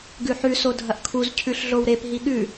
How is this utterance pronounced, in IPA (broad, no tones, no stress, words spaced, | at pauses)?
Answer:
ɡʉħʉ sodʱɐʔkʰuz cʰʉɬɮowɾep ɦiɠʉ